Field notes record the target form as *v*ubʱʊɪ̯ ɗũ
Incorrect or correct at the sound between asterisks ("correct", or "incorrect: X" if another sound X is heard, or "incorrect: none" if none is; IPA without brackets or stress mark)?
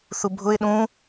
incorrect: θ